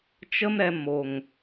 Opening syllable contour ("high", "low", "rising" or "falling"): high